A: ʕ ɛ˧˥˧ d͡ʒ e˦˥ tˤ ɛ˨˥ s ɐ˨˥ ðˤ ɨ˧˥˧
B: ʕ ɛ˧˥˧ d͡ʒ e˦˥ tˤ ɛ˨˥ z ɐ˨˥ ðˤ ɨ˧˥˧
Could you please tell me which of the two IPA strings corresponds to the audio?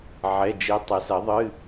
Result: A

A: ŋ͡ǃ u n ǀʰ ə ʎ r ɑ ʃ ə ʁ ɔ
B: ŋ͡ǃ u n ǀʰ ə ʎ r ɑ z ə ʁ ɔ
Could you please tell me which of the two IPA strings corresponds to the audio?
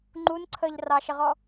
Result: A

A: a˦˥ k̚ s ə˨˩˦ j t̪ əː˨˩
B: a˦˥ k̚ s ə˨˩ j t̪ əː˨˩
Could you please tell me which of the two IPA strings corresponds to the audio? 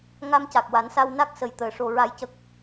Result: B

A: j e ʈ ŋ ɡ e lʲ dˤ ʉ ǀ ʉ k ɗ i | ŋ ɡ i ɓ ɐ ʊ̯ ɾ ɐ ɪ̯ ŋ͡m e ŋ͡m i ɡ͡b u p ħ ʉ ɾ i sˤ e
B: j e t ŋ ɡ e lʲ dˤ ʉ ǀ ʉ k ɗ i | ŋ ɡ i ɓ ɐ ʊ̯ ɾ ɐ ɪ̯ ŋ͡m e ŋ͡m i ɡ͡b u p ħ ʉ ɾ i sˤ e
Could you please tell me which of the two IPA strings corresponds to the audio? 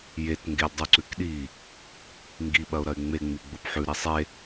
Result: B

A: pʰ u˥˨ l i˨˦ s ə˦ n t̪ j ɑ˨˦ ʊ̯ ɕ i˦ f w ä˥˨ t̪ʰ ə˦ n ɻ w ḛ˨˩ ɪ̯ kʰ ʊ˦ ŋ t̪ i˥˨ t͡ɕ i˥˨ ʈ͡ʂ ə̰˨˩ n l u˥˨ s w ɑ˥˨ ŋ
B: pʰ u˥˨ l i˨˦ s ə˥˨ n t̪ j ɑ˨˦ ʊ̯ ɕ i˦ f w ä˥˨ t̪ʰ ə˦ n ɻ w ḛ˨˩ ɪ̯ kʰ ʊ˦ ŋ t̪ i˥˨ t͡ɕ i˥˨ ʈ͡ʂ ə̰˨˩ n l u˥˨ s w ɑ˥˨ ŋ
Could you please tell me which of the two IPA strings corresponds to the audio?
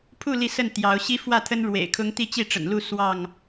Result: B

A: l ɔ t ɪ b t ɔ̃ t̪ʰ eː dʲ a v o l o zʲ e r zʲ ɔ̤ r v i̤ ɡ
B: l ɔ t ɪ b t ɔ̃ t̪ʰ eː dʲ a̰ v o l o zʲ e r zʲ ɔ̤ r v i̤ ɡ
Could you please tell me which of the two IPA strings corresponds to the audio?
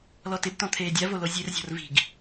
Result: A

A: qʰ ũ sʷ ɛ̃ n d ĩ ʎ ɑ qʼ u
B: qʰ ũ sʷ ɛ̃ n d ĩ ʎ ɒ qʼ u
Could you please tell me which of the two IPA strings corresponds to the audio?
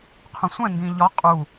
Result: B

